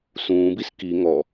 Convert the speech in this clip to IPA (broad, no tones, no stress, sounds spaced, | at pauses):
s ũː b i s k i ŋ ɔ